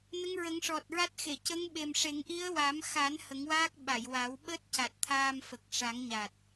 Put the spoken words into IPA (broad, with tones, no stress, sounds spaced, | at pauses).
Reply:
n ə˧˥ ŋ ɹ ə˨˩˦ ŋ ʂ ɔ˨˩ t̚ ɹ a˦˥ t̚ x e˨˩˨ c ə˧˥ ŋ ɓ e˨˩ m ʂ e˨˩˦ ŋ ʔ i˧˥ ə̯ w a˨˩˦ m x a˨˩˦ n h ə˨˩˦ ŋ w aː˦˥ k̚ ɓ a˨˩˨ j w aː˨˩˦ w ɓ əː˦˥ t̚ c a˨˩ t̚ t̪ʰ aː˧ m f ə˨˩ k̚ ʂ a˨˩˦ ŋ ɲ a˨˩ t̚